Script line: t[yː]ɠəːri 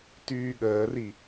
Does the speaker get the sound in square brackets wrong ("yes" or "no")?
no